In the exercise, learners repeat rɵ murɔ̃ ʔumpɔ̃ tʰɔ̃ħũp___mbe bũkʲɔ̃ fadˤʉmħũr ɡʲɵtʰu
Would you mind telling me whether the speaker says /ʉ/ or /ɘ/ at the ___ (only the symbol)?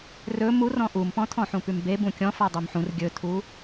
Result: ʉ